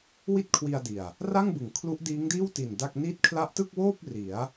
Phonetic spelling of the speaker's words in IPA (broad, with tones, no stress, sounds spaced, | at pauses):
w i˥˩ t̚ kʰ w i˧ a̯ d i˨˩ a̯ | r a˥˩ ŋ b ɯ˩˦ ŋ kʰ l u˦˥ ʔ d iː˦˥ ŋ d iː˥˩ w t i˨˩ n d a˥˩ k̚ n i˦˥ t̚ kʰ l a˦˥ ʔ t ɯ˥˩ k̚ w oː˥˩ p̚ r i˩˦ a̯